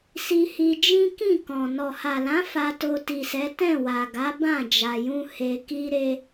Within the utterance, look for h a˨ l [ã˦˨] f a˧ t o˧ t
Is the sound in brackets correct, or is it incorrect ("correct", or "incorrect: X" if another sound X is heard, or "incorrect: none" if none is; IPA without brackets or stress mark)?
incorrect: ã˨˦